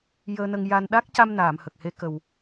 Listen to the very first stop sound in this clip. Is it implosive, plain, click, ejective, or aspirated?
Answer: implosive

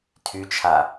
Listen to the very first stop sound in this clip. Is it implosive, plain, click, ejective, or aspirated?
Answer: aspirated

